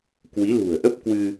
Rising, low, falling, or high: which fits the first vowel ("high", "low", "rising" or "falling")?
rising